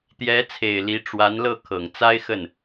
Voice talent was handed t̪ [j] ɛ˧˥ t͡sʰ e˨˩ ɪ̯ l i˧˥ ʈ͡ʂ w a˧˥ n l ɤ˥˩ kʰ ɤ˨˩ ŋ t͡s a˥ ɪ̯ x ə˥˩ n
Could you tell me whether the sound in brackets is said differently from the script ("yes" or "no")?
no